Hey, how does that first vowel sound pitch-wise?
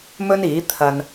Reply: high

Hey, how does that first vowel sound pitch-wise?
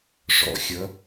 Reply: rising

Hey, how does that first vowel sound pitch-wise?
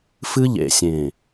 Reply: high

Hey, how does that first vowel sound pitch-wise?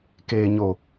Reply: low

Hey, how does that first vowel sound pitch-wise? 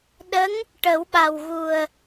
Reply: rising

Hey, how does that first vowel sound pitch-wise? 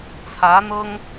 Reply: rising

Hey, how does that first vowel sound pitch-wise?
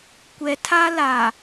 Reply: low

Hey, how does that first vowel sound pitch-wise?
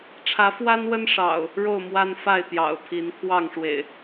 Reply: rising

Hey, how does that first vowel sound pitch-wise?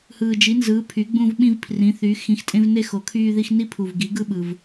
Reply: low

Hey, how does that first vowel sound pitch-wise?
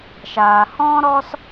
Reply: low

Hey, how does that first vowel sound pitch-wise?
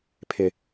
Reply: low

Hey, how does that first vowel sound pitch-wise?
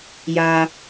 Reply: high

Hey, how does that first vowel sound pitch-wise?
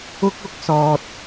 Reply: high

